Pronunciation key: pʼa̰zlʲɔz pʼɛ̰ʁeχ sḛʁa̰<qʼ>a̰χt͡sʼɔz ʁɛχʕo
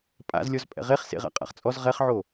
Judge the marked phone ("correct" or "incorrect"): correct